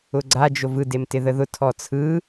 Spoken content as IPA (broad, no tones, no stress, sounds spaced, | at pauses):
ʊ ɡ͡ǀ a d͡ʒ o v ɯ d e m t ɪ ð ə ð ʊ tʰ ɔ t͡sʰ ɯ